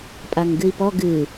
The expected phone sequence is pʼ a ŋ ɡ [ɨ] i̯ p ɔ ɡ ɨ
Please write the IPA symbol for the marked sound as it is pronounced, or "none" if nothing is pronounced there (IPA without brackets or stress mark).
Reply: ɨ